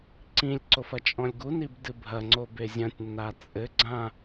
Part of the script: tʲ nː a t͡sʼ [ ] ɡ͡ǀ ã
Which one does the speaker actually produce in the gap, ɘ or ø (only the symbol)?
ɘ